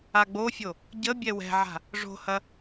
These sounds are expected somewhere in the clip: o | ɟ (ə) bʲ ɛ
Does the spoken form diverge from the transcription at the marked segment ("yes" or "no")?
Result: no